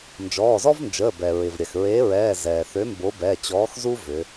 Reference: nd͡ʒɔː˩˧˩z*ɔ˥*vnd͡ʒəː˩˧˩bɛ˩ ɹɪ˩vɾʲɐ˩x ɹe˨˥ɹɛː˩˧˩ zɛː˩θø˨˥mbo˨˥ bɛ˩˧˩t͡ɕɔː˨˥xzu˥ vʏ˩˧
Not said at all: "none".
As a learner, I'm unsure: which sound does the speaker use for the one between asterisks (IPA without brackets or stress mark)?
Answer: ɔ˥